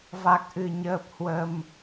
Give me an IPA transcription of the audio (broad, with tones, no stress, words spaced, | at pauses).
va˨˩k̚ʔɨ˧˩ɲəː˨˩p̚ hwə˨˩m